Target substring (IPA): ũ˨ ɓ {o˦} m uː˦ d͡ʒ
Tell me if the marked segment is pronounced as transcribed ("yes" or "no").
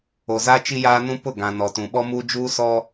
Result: no